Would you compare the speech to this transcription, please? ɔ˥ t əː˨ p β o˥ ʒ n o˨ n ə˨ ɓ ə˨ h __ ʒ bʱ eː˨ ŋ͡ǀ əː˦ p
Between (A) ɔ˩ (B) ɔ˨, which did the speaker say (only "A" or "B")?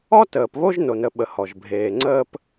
A